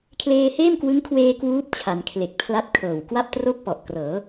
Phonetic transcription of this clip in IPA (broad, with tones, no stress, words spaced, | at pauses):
kʰleː˧heː˥˩mkwɯ˦˥ŋkʰweː˧ kwuː˦˥p̚ t͡ɕʰa˩˦nkʰle˨˩k̚pʰla˦˥t̚ kʰɤː˨˩w kwa˥˩p̚tro˥˩k̚ pɔ˨˩ʔkrɤː˩˦